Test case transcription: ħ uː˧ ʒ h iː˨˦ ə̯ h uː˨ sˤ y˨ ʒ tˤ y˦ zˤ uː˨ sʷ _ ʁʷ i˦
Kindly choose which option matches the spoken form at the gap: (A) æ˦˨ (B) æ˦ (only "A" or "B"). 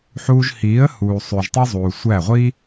A